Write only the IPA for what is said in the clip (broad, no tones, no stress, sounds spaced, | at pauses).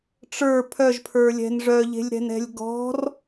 ʈ͡ʂ ə˞ pʰ œ ʒ pʰ ə˞ lʲ ɛ̤ n ʐ œ ʎ e̤ lʲ ɾ ɛ̤ n ɛ̤ lʲ ɡ ɔ̤ r